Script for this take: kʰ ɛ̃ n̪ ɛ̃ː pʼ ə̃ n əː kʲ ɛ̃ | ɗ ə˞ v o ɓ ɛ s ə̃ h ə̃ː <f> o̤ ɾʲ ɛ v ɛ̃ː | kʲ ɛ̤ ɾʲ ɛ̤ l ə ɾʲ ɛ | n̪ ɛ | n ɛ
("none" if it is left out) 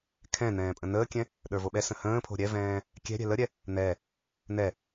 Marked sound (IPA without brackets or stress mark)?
pʰ